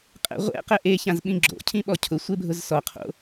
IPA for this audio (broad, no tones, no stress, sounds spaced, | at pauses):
qʼ ɛ̰ ʁʷ ɛ̰ q ɛ ʔ e ç ã z ɓ ĩ ɡ͡ǁ o̰ cʰ ĩ ɓ ɔ cʰ ʊ sʷ e bʱ ʊ z s ɔ qʰ o̰